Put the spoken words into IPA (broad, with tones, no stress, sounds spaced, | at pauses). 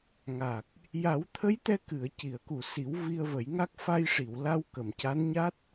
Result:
ŋ a˨˩ k̚ | j a˨˩˦ w t̪ʰ ə˧˥ j t̪ ɛ˧ k ɨ˨˩˨ ə̯ c i˨˩˨ ə̯ k u˨˩ s i˨˩˦ w v i˧ ə̯ v ə˨˩˦ j ŋ a˦˥ k̚ f a˧ j ʂ i˨˩˨ w l a˧ w k ə˨˩ m c a˧˥ n ɲ a˦˥ t̚